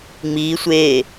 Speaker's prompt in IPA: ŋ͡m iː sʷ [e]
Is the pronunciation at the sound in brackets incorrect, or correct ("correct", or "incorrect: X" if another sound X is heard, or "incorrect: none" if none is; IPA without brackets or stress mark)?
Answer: incorrect: eː